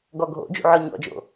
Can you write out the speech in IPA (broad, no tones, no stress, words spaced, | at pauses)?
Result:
ɡɔɡʱo̰d͡ʒṵ ʕɔɲɔ̰d͡ʒo̰